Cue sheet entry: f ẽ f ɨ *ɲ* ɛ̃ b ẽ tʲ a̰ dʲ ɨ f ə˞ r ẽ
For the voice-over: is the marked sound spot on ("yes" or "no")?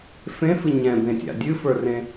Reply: yes